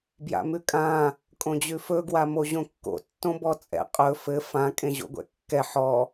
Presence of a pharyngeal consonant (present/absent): present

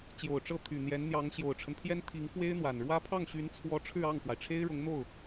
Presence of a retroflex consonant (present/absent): present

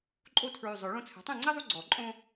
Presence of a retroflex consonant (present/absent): present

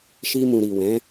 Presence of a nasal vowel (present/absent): present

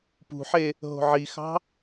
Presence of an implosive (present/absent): absent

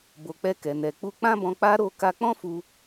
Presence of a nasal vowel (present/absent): present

